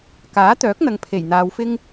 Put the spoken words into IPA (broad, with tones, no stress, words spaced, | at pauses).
kaː˨˥t̪œː˨˥k̚n̪ɐ˨ŋ pʰe˨˩jn̪aː˨˧wfɪ˥ŋ